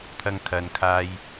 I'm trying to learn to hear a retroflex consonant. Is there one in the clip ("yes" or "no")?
no